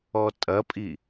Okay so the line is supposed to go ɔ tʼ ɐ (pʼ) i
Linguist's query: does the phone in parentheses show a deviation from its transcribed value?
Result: no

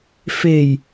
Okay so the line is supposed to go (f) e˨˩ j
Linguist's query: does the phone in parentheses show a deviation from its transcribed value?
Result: no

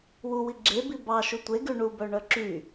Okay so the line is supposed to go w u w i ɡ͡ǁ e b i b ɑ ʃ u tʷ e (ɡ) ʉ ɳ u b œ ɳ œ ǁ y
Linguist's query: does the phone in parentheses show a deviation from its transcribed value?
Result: no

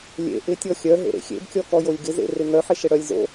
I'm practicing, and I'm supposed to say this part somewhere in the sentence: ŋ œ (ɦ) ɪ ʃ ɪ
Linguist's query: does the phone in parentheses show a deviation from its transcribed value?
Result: yes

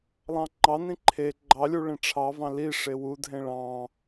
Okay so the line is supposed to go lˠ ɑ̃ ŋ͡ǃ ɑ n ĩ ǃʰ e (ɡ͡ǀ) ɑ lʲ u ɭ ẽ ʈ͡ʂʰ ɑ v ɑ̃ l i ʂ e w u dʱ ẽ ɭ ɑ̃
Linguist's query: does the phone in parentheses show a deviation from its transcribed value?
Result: yes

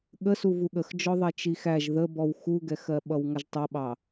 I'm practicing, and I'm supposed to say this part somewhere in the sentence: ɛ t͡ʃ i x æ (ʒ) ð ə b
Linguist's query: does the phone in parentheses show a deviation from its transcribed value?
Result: no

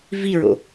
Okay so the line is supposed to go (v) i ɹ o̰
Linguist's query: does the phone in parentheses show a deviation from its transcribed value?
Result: no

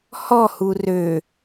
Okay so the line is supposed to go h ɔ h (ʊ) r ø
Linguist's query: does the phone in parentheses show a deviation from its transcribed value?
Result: yes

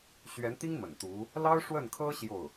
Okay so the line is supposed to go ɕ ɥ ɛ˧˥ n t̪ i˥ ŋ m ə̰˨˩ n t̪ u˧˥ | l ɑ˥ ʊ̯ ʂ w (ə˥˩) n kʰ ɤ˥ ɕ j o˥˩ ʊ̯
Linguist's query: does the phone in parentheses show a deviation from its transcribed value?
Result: no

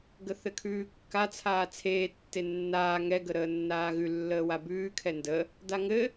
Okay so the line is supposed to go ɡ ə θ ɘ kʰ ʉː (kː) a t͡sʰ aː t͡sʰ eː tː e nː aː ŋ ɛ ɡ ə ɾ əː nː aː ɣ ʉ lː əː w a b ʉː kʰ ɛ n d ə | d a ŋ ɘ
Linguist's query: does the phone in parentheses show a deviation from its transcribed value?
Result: no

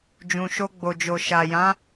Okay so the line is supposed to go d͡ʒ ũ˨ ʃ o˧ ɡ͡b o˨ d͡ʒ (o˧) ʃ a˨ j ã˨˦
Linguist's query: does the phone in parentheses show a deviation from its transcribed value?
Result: yes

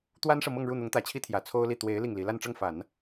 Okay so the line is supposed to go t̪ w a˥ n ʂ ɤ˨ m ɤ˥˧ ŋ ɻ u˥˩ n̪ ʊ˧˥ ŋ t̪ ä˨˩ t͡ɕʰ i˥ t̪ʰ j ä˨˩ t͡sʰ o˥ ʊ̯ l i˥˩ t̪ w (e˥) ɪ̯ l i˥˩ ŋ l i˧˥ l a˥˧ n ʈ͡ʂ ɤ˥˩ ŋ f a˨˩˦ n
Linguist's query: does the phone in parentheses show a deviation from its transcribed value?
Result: yes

